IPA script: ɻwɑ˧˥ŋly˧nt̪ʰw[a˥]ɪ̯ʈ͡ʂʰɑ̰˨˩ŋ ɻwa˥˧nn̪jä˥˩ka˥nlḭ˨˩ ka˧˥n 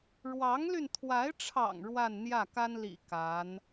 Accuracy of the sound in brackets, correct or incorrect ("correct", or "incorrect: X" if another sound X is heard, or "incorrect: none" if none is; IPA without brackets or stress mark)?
incorrect: a˧˥